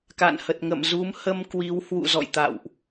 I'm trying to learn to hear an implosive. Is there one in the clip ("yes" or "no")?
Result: no